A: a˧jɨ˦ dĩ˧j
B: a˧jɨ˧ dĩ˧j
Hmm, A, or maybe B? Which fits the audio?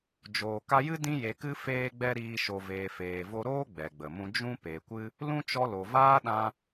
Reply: A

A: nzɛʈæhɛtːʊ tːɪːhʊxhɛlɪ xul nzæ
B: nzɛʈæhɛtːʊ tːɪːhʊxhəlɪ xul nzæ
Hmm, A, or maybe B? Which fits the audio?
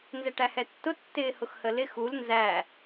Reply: B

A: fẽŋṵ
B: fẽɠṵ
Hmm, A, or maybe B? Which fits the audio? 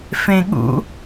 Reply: B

